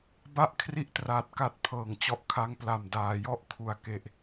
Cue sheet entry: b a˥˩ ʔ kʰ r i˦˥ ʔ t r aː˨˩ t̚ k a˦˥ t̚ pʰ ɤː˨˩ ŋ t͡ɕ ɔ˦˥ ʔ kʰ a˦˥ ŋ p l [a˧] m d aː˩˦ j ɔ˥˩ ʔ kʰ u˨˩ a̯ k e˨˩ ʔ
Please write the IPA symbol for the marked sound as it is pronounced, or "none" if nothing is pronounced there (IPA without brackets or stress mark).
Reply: a˨˩